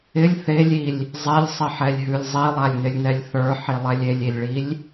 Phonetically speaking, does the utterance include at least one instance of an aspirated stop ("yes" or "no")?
no